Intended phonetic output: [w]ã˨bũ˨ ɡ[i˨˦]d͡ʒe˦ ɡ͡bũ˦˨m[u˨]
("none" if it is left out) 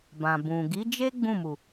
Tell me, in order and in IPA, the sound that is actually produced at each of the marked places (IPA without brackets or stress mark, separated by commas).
b, i˨˦, u˨